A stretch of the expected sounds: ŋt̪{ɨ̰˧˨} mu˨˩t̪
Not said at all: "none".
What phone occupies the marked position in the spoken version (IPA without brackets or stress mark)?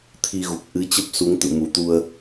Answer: ɨ̰˧˨